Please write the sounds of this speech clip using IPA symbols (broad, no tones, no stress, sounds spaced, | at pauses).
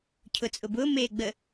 cʰ ʊ t͡sʼ ʊ b ʊː m eː ɡ͡b ə